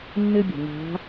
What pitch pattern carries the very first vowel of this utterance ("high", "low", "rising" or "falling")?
high